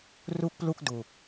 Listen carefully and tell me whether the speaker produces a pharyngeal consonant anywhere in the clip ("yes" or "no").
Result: no